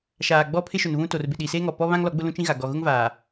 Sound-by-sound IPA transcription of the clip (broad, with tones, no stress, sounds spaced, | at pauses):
ʃ aː˨ ɡ͡b ɔ˦ pʰ ɪ˦ ʃ ʊ˨ n β ũ˦ t o˨ r b ɪ˨ ɗ i˨ s eː˦ ŋ ɔ˨ p ɔ˦ β ã˦ ŋ l ɔ˨˦ ɡ͡b ʊ˦ l ũ˦ t͡ʃ ĩ˦ ɣ a˨ ɡ ɔ˨ ɣ ʊ˦ ŋ v aː˨